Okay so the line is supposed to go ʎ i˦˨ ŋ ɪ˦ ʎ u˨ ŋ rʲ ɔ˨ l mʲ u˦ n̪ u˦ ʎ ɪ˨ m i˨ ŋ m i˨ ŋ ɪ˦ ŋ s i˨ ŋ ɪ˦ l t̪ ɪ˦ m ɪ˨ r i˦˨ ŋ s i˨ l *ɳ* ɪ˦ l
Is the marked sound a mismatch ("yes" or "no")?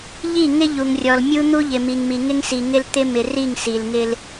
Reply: yes